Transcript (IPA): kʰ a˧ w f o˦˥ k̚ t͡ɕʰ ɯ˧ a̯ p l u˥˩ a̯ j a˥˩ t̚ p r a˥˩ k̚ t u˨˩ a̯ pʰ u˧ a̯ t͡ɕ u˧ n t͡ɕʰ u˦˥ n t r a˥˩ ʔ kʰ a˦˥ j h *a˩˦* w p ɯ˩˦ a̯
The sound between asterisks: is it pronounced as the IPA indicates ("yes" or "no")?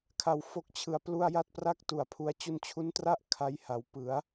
yes